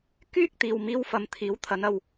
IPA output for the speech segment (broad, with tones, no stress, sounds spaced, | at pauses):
k yː˥ k̚ t̪ iː˨ w m iː˧ w f ɐ˨ m t̪ʰ iː˨˥ w t̪ʰ ɐ˨˧ n ɐ˨ w